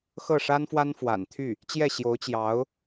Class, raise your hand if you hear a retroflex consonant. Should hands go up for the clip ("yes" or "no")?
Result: yes